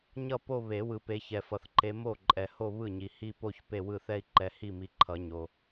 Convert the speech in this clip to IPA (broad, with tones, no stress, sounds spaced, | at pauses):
ɲ ʌ˥˩ p o˥˧ β e˨˩˦ w ɯ˨ p e˨˦ ç ɛ˨ f ʌ˨ θ ǃ e˨˦ m o˥˩ ǃʼ ɛ˨ h o˥˧ β ɯ˥˩ ɲ i˨ h i˥˧ p o˥˧ ç p e˥˩ w ɯ˥˩ θ ɛ˥˧ i̯ ǃ ɛ˨˦ h i˥˩ m i˨˦ ǃʰ ʌ˨˩˦ ɲ o˨